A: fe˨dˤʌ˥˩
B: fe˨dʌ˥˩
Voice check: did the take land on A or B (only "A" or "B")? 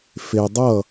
A